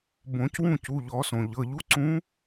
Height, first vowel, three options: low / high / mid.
mid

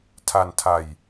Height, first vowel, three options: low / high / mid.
low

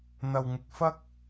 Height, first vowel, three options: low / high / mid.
low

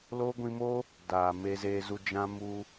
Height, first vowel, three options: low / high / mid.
mid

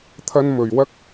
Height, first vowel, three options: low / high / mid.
low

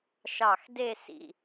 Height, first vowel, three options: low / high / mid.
low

